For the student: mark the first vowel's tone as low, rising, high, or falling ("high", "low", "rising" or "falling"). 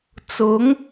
rising